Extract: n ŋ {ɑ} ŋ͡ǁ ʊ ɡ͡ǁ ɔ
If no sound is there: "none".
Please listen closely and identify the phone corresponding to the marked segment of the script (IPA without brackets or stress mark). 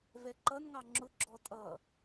ɑ